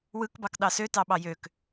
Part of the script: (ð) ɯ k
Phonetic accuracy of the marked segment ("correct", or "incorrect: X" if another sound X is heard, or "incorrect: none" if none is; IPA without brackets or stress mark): incorrect: w